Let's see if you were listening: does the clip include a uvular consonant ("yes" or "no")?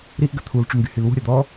no